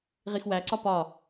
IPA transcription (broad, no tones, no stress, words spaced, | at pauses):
ʁixwæǀɒ pɒ